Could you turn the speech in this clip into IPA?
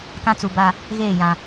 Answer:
kã˦t͡su˨ ba˦ | ɣeː˦˨jã˨

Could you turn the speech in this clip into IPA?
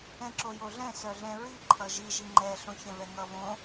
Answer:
ɛ̃ǁojoɮɛ̃ sœɮɛ̃ɹi ǃʰʌʒi ʒiŋ͡ǃɛ ɬõçɛ̃vɛŋʌ βõ

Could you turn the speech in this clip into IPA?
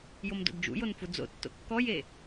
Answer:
jomdo̰dd͡ʒṵjon fud͡zo̰tːo̰ kːɔje

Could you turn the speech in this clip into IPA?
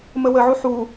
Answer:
məwəʕu ħu

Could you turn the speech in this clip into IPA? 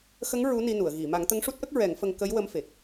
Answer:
xə˧˥ŋ ɹu˧˥ni˧nu˨˩˨ə̯ ɣi˨˩˨ ma˨˩˦ŋt̪ə˧˥ŋʂu˦˥t̚ʔə˦˥k̚ ɹɛ˨˩˦ŋfə˧ŋ kə˧˥jwə˧˥mfe˨˩k̚

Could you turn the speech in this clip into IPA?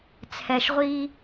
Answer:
t͡sʰɛ˨ʃʁʷi˦

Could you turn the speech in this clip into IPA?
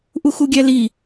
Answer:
ʔuxuɡʲæli

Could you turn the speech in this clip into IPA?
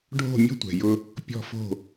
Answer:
ɖʱo̤˦˨ mʲɔ̤˦tʷɛ̤˨ jʊ˦ | pʲɔ̤˦˨fo̤˦˨

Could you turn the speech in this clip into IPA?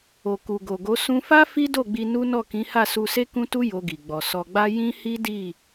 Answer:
o˨ku˨ɡo˨ɡo˨˦ sũ˧fa˦ fi˦do˦˨ɡ͡bi˧ nu˦ nɔ˦˨kĩ˨˦ha˦˨ su˧se˦kũ˦tu˦ jo˧ɡi˨ɡ͡bɔ˨ sɔ˨ɡ͡ba˧ jĩ˦hi˦di˦˨

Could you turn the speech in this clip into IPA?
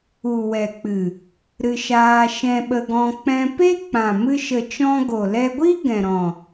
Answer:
u˨wɛ˨k͡pɨ˨ | ɾɨ˧ʃaː˧ ʃɛ̃˧ɓə˧ɡɔ̃˧ k͡pɛ̃˧pe˦k͡pã˨ mɨ˧ʃə˨t͡ʃɔ̃˧ ɡo˨lɛ˧ɡʷi˦ ɡɛ̃˨ɾɔ̃˨

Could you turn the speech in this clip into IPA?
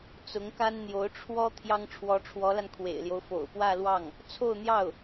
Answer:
t͡sʊ˧˥ŋka˥n n̪jo˧˥ʊ̯ ʈ͡ʂʰwɔ˥ t̪ʰjɑ˥ŋʈ͡ʂʰwɔ˧˥ʈ͡ʂʰwɔ˧˥la˧n kʰwḛ˨˩ɪ̯ljo˦ʊ̯fo̰˨˩ʊ̯ pwä˥˧lwɑ˥˩ŋ | t͡sʰo˥˧ʊ̯n̪jɑ˥˩ʊ̯

